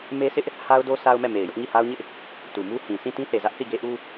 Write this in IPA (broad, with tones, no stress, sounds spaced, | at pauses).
m e˦ s ɪ˦ ʔ | h a˦ ʊ̯ d o˦ s a˦ ʊ̯ m ɛ˦˨ m e˨ ɪ̯ j ʊ˦ ʔ ŋ i˦˨ h a˦ ʊ̯ ɲ ɪ˦ ʔ | t u˨ m u˦ h ĩ˨ s ĩ˦˨ t ĩ˦ θ e˨ z ä˦ ʔ θ i˦˨ ɡ e˦ ʔ u˦